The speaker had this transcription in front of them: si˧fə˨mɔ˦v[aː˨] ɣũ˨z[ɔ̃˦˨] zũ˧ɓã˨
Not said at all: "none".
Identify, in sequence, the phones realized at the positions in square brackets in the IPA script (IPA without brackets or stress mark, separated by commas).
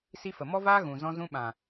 aː˦, ɔ̃˧